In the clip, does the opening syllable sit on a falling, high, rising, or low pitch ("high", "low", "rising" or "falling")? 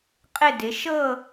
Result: falling